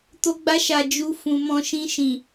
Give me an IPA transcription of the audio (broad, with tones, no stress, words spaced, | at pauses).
to˧ɡ͡ba˧ʃa˨ d͡ʒu˧ fũ˨mɔ̃˧ ʃĩ˧ʃĩ˨